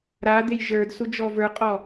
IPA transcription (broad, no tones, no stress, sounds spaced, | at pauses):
ɾ a d̪ e j ʒ ə˞ d s u d͡ʒ ɔ v ə˞ qʼ ɔ